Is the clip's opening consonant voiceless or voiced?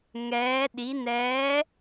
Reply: voiced